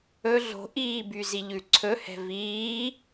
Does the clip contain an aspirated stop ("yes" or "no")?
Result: yes